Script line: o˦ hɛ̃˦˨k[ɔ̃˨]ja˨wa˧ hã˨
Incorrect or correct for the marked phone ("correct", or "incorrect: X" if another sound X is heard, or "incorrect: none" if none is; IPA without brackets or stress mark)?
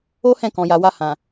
correct